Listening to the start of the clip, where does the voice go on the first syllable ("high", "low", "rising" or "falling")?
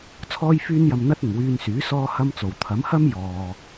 high